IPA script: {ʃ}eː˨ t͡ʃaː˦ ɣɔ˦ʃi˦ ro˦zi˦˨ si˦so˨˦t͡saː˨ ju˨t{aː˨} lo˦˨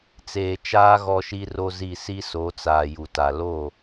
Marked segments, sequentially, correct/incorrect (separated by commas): incorrect, incorrect